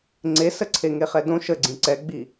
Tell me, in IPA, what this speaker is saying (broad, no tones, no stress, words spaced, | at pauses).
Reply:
ŋ͡ǀesə ǀʰeŋeχɛdõ ʃəɡ͡ǀĩ ǀɛɡ͡bi